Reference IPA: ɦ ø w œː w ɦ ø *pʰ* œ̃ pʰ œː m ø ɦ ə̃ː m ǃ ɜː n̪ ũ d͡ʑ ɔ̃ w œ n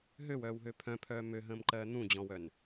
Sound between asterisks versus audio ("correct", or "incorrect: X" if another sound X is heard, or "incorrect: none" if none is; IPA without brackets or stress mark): correct